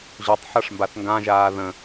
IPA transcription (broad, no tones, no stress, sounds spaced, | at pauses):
ʑ ɵ tˤ ħ ɤ ʂ m b a θ ŋ ɡ ã ʒ aː ð ə̃